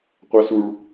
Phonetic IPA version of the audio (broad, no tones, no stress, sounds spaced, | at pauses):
qʷ a s u ɭ